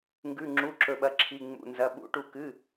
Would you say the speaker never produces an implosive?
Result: no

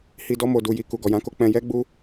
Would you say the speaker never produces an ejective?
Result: yes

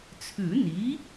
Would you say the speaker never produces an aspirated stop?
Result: no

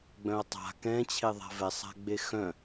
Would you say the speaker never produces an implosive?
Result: yes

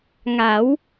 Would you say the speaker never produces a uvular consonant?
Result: yes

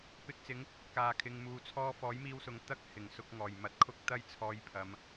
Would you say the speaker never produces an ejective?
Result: yes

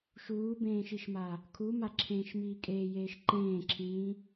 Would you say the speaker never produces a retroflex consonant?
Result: yes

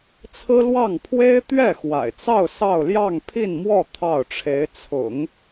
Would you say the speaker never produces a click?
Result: yes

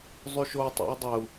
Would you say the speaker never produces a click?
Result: yes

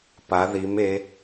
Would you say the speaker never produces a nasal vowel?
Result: yes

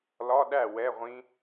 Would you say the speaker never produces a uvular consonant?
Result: no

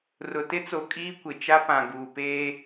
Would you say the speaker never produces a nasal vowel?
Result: no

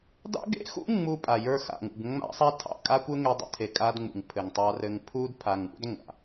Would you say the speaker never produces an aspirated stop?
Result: no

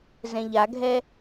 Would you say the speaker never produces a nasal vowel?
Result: no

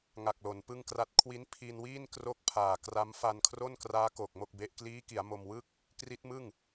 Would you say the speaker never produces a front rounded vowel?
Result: yes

